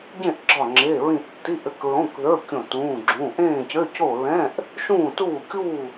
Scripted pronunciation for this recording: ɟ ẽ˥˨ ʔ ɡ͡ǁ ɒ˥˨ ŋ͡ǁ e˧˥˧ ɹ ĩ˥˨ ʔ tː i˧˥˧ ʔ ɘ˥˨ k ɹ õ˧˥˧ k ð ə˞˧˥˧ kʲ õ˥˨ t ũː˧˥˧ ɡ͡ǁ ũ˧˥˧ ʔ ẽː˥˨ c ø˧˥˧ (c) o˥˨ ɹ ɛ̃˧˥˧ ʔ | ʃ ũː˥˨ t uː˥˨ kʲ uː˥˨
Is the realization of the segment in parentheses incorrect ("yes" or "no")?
no